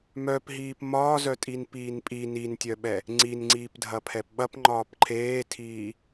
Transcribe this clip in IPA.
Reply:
m œ p ɦ iː p m ɒː z œ tʼ i n p iː n pʼ i n i n tʲ œ ɓ ɛ | ŋ͡ǀ i n ŋ͡ǀ iː p dʱ ɐ pʰ ɛ p ɓ ɐ p ŋ͡ǃ ɒː p ǃʰ eː tʰ iː

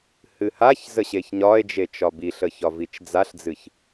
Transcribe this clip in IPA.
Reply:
h ɨ h a ç z ə ɕ e ç ɲ ɒ e̯ d͡ʒ e t͡ʃ ɒ b i ɬ ə ç ɒ v i t͡ʃ d͡z a ɬ d͡z ɨ ç

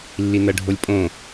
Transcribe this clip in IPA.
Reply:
lː i n ɐ ɖʱ o lʲ pʼ õ

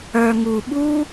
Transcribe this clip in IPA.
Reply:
œ˧ ŋ u˧ ɓ u˦

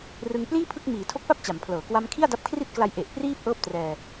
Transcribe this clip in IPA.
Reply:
r ɯ˧ ŋ p l iː˥˩ pʰ ɯ˥˩ k̚ m iː˩˦ tʰ o˦˥ k̚ p a˥˩ p̚ t͡ɕ a˩˦ m pʰ l ɤː˩˦ k w a˦˥ m kʰ i˥˩ a̯ d a˦˥ p̚ kʰ r i˥˩ t̚ k l a˦˥ j ʔ e˨˩ ʔ p r iː˥˩ p̚ ʔ ɤː˥˩ p̚ t r ɛː˧

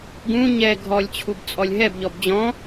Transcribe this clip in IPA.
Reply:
ɡ ũ ɲ ɛ ɡʱ ɔ lʲ t͡ɕʰ u b t͡sʼ ɔ lʲ ɦ ɛ b ʎ ɔ b d͡ʑ ɔ̃

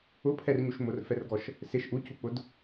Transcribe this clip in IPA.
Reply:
ʊ pʰ ɛ r ɲ u ʃ m ʊ r f ɛ r ɡ ɔ ʃ | s ɪ ʃ ʔ u c u k͡p ʊ d

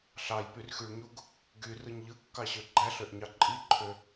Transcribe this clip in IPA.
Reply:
ɬ ɑ j p y r x y ɭ ɲ u ɡ | ɡ y r ɯ ɲ ʎ ɯ kː ɑ ɕ ø ɡ͡ǃ æ ɬ ø ʔ ɲ ɑ ǃʼ i ǃʰ ø

